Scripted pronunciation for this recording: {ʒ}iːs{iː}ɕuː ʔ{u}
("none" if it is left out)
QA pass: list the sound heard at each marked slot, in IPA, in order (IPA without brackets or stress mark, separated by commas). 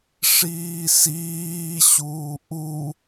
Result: ʂ, iː, u